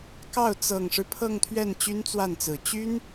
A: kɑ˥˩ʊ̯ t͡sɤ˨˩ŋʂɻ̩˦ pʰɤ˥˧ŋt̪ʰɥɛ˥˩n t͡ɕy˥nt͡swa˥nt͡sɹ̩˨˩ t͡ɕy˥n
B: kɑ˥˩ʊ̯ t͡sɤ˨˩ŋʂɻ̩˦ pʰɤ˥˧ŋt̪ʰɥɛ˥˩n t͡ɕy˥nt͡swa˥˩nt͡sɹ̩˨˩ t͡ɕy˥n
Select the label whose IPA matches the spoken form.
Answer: B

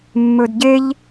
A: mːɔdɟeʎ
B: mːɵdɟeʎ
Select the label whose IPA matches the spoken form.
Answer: B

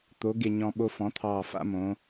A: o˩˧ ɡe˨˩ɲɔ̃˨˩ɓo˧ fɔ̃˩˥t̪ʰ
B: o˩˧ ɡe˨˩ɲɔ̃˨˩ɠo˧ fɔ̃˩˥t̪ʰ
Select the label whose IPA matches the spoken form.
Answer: A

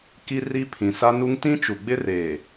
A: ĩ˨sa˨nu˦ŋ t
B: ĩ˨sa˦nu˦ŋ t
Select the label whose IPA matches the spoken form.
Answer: B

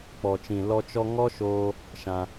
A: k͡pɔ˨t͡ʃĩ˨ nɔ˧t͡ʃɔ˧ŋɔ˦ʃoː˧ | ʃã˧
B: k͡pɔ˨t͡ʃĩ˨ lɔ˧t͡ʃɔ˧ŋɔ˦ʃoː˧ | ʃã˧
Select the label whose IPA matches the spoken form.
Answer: B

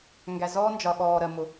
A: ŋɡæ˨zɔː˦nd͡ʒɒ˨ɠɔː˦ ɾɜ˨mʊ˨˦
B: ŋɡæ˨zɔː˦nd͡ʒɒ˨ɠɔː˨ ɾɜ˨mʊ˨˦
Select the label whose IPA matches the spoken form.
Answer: B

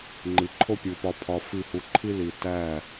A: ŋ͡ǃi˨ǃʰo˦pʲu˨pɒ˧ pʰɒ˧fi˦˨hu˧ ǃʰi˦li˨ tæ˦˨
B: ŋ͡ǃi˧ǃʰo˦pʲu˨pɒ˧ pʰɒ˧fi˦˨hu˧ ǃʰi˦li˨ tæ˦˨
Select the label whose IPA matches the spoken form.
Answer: A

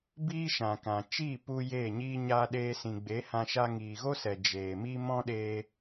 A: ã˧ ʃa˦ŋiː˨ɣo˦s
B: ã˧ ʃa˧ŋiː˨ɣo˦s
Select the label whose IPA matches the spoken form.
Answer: B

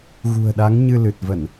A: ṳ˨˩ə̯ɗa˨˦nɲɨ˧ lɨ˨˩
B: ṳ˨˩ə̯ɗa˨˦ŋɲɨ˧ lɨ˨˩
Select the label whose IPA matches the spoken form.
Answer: B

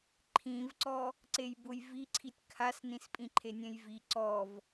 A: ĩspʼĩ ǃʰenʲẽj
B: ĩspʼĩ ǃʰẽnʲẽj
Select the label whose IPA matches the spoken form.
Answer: A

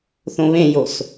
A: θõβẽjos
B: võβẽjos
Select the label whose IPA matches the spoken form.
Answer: A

